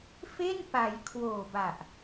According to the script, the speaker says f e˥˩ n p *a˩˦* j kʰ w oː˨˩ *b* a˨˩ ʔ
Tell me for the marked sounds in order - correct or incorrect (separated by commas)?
correct, correct